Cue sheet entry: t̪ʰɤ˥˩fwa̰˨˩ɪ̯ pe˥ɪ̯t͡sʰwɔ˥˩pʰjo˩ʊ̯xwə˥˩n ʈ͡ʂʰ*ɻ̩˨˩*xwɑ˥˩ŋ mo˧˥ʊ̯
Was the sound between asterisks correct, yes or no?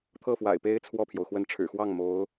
yes